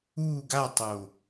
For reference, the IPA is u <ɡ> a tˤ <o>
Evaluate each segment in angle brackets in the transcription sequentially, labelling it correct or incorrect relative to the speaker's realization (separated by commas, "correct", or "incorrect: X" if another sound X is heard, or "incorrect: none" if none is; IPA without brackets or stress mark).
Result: correct, correct